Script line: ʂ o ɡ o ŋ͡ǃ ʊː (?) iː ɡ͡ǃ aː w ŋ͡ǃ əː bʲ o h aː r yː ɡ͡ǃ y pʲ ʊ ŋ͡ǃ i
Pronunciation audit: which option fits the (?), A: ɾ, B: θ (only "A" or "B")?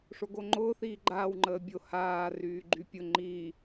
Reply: B